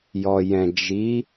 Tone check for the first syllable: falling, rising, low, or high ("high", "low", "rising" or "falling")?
low